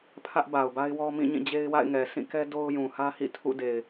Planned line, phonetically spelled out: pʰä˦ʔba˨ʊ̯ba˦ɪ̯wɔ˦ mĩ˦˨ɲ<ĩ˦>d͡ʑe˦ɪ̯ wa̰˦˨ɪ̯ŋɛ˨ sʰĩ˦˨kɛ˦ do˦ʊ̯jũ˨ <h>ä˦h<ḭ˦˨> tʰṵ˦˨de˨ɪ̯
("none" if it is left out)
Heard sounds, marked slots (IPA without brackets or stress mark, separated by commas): ĩ˦˨, h, ḭ˦˨